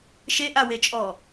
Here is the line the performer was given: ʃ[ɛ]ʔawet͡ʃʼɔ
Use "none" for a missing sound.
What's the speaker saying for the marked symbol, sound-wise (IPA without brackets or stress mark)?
e